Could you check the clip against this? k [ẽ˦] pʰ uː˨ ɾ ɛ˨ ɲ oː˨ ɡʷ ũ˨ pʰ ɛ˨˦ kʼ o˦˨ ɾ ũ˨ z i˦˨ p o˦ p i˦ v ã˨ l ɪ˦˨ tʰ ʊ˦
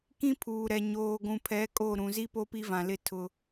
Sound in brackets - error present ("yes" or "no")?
yes